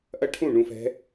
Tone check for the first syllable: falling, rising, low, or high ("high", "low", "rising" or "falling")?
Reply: high